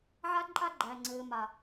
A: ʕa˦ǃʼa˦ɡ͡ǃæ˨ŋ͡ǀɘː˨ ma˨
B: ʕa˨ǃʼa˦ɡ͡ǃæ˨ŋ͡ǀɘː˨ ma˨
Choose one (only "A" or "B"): A